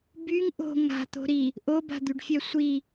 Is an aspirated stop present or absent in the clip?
absent